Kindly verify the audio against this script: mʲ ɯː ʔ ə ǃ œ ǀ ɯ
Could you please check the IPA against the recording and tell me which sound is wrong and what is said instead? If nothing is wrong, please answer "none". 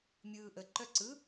none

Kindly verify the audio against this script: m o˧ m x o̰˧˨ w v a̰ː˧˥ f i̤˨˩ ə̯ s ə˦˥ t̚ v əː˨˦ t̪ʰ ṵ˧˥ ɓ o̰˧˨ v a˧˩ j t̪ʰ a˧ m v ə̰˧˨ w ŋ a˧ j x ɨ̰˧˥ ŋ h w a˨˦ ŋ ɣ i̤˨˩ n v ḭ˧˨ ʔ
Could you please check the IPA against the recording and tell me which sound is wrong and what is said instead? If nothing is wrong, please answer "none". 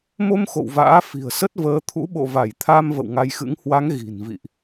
none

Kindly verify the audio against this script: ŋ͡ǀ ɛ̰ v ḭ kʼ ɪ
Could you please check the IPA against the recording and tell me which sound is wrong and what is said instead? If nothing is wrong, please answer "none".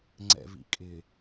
none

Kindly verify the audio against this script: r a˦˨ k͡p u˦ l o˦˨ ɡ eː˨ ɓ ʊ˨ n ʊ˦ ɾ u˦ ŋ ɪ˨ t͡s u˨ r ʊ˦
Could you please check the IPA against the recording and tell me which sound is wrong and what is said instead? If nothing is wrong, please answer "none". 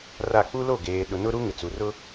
ɓ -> ɗ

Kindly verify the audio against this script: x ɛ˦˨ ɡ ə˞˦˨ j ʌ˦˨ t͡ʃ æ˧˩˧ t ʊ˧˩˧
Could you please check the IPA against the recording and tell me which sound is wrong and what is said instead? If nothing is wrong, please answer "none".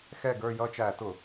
none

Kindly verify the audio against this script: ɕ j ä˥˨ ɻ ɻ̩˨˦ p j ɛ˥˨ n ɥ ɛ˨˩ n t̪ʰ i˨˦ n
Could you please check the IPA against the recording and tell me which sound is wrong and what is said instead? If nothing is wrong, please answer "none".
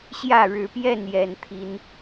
ɥ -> j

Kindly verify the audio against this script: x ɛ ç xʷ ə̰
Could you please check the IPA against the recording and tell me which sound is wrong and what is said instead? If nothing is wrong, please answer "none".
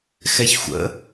none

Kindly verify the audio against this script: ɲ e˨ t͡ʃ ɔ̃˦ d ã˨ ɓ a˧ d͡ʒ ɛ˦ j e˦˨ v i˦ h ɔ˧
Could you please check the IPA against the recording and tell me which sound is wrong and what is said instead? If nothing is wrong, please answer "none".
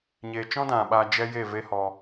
i˦ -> e˦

